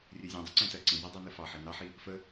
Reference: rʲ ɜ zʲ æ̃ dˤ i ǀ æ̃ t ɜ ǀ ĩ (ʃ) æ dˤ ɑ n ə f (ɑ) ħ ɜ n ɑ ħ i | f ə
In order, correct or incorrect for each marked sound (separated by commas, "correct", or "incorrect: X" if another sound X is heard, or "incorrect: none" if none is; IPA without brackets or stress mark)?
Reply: incorrect: z, correct